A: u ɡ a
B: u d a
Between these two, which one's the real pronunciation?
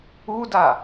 B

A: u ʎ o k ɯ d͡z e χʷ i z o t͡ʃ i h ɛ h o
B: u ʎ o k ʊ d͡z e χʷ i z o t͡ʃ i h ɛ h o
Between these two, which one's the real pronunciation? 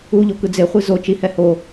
A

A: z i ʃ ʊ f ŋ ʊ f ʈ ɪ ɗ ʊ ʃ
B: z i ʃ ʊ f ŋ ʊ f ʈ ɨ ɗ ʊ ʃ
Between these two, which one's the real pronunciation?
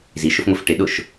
A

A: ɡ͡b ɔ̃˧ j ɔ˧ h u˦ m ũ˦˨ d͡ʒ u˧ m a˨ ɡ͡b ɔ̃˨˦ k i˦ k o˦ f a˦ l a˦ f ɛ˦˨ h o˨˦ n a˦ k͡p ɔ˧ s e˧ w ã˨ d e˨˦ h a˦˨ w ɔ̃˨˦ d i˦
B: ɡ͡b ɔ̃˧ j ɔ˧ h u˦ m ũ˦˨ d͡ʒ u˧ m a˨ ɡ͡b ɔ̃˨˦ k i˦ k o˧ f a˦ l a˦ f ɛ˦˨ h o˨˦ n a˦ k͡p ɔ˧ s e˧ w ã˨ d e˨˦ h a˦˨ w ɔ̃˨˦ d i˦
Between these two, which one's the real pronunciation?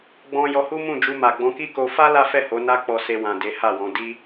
B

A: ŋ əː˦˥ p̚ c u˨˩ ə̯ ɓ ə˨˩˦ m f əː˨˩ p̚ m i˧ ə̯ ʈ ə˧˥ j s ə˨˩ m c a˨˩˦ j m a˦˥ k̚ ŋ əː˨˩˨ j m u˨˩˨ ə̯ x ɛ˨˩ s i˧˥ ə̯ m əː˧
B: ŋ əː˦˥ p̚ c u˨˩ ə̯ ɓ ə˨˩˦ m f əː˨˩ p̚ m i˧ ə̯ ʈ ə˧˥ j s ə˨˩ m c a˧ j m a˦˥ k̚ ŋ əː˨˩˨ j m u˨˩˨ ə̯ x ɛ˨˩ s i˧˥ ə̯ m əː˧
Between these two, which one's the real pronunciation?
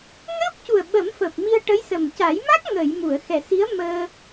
A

